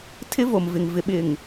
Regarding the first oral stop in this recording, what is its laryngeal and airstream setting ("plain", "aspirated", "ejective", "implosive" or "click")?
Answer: aspirated